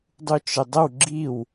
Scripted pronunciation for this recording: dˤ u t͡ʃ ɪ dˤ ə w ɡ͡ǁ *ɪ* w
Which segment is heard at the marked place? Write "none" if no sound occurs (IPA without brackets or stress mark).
i